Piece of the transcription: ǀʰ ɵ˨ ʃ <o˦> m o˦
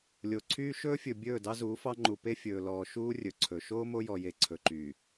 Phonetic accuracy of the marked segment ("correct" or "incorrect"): incorrect